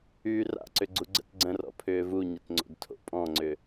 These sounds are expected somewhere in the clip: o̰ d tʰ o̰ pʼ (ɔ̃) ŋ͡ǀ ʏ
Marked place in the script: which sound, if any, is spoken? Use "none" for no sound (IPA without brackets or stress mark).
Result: ɔ̃